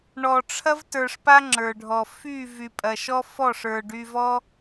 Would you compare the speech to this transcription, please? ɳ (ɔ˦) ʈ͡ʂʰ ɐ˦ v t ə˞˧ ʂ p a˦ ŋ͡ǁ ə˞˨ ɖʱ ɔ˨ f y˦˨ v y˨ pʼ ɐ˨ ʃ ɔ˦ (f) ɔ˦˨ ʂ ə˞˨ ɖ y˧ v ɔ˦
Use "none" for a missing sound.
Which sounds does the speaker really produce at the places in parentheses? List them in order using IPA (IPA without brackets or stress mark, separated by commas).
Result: ɔ˨, f